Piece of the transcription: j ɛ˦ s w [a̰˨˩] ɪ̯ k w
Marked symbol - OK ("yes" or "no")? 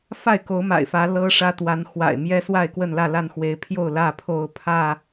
no